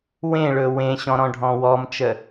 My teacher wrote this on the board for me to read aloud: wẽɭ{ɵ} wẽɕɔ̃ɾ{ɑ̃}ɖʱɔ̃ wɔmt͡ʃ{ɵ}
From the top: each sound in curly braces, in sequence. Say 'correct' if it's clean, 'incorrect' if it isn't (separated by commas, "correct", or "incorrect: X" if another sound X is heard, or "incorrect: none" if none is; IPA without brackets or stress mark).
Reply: correct, incorrect: ɔ̃, incorrect: ə